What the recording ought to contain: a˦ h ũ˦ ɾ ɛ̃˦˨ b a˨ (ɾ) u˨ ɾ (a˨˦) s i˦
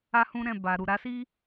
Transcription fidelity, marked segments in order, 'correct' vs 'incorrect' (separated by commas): correct, correct